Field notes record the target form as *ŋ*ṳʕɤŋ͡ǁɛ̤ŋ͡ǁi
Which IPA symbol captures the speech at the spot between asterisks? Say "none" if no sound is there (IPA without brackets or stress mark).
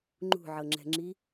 ŋ͡ǃ